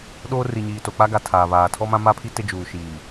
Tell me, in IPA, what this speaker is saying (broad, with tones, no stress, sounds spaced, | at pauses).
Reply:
ɗ oː˦ r i˨ ɲ iː˨ t o˨ k͡p a˦ ɡ a˨ tʰ aː˨ β aː˨ tʰ ɔ˦ m ã˦ m a˦ pʰ i˦ t ɪ˦ d͡ʒ uː˨ ʃ iː˨